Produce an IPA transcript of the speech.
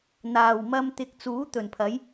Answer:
n̪ aː˨˩ w m ɐ˧ m t̪ ɪ˨˥ k̚ t͡s uː˨˥ t̪ ɵ˨˩ n pʰ ɐ˨˥ j

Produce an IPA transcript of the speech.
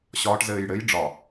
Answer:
ɕ ɒ ʈ z ɘː j ɽ ɘ j ɖ͡ʐ ɒ

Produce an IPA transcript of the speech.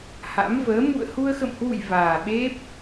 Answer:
h a̰˧˥ m v əː˨˦ m ṵ˧˨ ə̯ h u˧ ə̯ x ə̰˧˨ m h w ṵ˧˨ j v aː˨˩ ɓ e˦˥ p̚

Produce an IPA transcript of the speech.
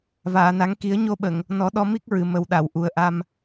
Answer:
v aː˨˩˨ n a˨˩˦ ŋ k i˨˩˦ ə̯ ɲ o˧ ɓ ə˨˩˨ ŋ | n ɔ˨˩˦ ɗ ɔ˧ m i˦˥ k̚ ɹ ɨ˨˩ m ə˨˩ w ɗ a˨˩˨ w ʔ u˨˩ ə̯ ʔ a˧ m

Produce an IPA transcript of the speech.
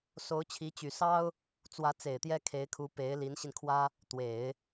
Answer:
s o˧˥ ʊ̯ t͡ɕʰ i˧˥ t͡ɕ y˨˩ s ɑ˥ ʊ̯ | t͡s w ä˧˥ t͡s e˨˩ ɪ̯ t̪ j ɛ˥ kʰ e˧˥ ɪ̯ kʰ u˧˥ p e˧˥ ɪ̯ l i˧˥ n ɕ i˧ n kʰ w ä˥ | t̪ w e˨˩˦ ɪ̯

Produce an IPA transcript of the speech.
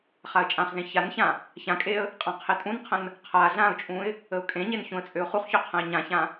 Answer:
χ a ə̯ t͡ʃʼ ã χ z ẽ ç a n ç ã | ç ã kʼ e ə̯ | qʼ ã qʰ e tʼ ũ n qʰ ə̃ n | qʰ a ɮ ã ʊ̯ t͡ʃʼ ũ ɪ̯ | ə ʊ̯ kʼ ẽ ɲ e n ç ũ ə̯ t͡sʼ ø ʊ̯ χ u χ ç ø qʰ ə̃ ɪ̯ ɲ ã ç ã

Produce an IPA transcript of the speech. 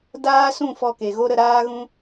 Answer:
d aː˦ s ũ˦˨ f ɔ˧ k e˨ ɣ o˦ ɾ ə˧ ɾ aː˦ ɣ ũ˦

